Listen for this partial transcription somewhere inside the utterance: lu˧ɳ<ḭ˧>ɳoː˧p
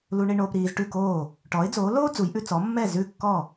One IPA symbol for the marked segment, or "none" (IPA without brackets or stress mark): i˧